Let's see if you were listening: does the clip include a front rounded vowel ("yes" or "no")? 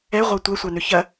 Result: yes